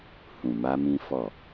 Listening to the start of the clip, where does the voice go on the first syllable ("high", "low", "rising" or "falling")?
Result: low